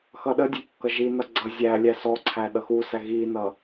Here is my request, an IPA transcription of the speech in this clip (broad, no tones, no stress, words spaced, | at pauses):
xʌɗədʲə kːʌʒinʌ ɡ͡ǀʌ zʲælʲæ sɔǀʰæ ɗʌxusæ ɣinʌ